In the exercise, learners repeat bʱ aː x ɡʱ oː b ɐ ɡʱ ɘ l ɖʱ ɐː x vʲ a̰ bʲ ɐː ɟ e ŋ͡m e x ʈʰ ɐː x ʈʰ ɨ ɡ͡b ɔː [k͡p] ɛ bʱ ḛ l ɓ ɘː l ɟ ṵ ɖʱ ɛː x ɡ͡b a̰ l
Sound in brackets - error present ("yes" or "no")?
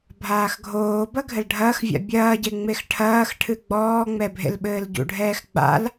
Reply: yes